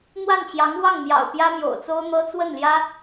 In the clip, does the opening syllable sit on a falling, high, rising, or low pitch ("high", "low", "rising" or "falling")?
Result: falling